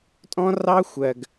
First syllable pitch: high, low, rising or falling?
high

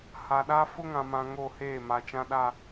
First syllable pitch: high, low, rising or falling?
low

